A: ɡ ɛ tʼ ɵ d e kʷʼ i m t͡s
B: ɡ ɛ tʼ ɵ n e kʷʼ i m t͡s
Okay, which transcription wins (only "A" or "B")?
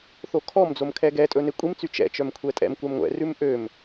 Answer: B